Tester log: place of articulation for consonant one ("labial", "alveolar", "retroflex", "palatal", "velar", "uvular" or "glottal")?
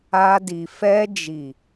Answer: alveolar